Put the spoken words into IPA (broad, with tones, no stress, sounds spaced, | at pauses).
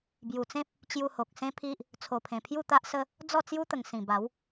b j u˨˩ t͡s ẽ˦ p̚ | t͡ɕ j u˧ h o˨ k̚ s ẽ˦ pʰ i˦ ʔ | t͡sʰ o˨˩ pʰ ẽ˨˩ pʰ j u˥˧ t̪ a˦ ʔ s ə˦ | d͡z ɔ˥˧ t͡s j u˦ t̪ ə˨˩ ŋ s ĩ˨˩ b a˨˦ w